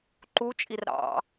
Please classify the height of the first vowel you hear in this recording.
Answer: high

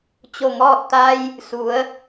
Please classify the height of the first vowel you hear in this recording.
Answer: mid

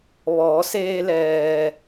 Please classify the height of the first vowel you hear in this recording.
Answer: mid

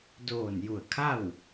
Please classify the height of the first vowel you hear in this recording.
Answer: mid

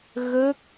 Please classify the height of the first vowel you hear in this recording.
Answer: mid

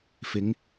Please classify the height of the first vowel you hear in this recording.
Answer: high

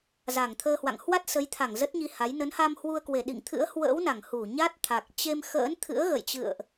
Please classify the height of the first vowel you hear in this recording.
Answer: low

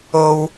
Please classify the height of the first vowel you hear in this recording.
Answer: mid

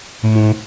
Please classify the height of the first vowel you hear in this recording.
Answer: high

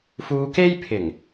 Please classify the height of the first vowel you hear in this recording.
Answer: high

